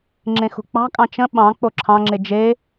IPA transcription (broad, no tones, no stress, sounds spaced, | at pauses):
ŋ͡ǁ ẽ x ṳ k͡p ɑ̤ kʼ ɑ̃ t͡ʃ ə̃ ɓ ɑ̃ k͡p o ǁʰ ɑ̃ ŋ͡ǁ e d͡ʒ e